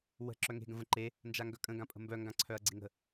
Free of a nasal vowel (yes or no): no